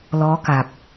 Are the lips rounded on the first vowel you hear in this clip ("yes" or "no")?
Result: yes